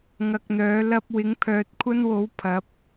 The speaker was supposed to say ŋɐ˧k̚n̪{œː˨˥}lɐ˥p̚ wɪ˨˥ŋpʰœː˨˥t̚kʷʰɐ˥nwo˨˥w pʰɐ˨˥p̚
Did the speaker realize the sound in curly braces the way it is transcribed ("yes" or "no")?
yes